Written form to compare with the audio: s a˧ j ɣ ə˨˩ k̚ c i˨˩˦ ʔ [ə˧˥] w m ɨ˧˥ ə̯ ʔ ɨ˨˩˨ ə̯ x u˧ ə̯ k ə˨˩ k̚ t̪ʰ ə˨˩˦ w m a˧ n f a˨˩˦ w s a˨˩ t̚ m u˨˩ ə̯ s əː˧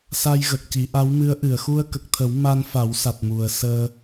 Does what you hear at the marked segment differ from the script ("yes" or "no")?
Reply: yes